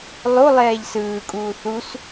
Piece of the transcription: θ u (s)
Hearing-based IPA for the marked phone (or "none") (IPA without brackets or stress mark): s